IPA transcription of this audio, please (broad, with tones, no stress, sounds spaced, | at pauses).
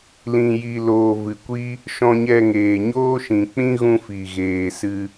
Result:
l ĩ˨ j i˨ l oː˨ v ɨ˨ kʷ i˦ | ʃ ɔ̃˧ ɲ ɛ˧ ŋ eː˨ ɲ oː˦ ʃ ĩ˨ k͡p ĩ˦ ɣ ũ˧ f i˨ ɣ eː˨ s ɨ˧